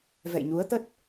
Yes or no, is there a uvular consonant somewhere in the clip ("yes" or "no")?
no